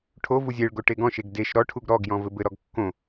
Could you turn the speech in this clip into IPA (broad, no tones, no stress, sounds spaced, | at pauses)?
ʈʰ o v u zʲ e ɭ ɡ o ʈ e ɡ ɔ̃ ʃ e ɡ d e ʃ ɾ ɔ ʈʰ u ɡ ɾ ɔ ɡ j ɔ̃ v ɘ b ɘ ɾ ɔ ɡ kː õ